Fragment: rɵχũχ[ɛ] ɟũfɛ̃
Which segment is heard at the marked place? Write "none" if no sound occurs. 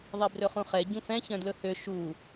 ɛ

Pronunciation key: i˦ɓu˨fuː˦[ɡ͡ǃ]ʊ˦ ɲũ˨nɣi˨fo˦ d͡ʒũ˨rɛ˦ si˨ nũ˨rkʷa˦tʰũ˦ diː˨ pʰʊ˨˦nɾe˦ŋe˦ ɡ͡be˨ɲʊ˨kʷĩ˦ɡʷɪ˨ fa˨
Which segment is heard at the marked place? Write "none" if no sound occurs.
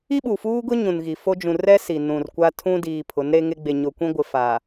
ɡ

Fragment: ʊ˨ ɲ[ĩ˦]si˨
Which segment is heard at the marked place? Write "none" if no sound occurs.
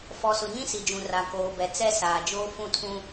ĩ˦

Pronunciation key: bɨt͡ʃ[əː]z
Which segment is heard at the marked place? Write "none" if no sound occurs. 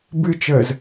əː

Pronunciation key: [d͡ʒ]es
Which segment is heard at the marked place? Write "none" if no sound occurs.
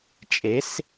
t͡ʃʼ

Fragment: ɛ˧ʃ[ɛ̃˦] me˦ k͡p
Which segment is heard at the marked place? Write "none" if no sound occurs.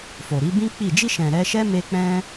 ɛ˦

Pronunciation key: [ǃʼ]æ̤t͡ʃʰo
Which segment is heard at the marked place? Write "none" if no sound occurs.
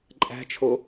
ǃʼ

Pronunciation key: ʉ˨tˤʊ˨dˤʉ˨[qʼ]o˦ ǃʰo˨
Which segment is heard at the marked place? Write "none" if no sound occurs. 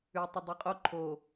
qʼ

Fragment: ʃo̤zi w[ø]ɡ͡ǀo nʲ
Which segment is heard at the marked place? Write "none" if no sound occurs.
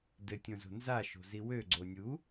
ø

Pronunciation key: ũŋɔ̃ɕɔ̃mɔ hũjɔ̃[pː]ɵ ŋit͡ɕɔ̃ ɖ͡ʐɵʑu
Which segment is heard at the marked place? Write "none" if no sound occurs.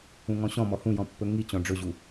pː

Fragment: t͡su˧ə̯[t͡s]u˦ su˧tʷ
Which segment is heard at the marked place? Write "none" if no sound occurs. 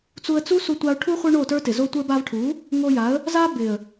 t͡s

